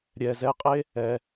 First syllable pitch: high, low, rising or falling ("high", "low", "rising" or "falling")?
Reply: low